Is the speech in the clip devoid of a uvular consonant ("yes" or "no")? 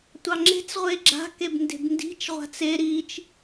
no